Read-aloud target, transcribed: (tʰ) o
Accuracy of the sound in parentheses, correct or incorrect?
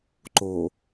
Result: incorrect: ǃ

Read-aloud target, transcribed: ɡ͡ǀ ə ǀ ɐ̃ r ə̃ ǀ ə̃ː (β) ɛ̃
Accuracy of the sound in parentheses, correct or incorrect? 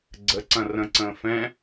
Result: incorrect: f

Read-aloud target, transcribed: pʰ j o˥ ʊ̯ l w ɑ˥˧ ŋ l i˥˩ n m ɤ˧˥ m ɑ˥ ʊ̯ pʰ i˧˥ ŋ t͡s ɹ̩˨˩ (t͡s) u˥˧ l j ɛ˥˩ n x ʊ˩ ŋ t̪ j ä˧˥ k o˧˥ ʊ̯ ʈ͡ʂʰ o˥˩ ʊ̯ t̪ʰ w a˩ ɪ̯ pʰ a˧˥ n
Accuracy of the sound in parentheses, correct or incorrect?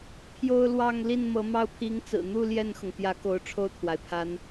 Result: incorrect: n̪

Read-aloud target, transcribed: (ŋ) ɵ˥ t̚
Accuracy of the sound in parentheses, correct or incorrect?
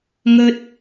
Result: correct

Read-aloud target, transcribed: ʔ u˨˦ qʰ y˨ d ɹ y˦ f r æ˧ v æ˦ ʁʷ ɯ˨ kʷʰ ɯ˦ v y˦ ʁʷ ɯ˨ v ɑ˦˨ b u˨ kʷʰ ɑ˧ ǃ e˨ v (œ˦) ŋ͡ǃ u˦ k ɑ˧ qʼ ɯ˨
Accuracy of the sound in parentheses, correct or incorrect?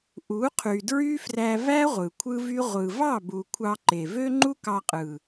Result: incorrect: ø˦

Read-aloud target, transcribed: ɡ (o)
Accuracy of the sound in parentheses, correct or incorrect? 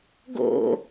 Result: incorrect: o̰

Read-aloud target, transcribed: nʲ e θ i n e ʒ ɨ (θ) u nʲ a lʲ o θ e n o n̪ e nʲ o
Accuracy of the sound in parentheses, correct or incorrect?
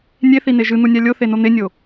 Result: incorrect: n̪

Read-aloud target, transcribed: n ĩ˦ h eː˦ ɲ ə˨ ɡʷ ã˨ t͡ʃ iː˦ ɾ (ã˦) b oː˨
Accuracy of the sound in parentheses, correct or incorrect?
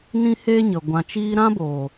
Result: correct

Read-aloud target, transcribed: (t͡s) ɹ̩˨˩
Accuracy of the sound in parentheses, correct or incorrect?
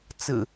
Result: correct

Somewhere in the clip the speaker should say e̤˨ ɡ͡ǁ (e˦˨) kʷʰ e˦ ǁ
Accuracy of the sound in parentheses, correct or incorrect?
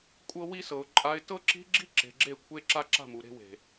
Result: correct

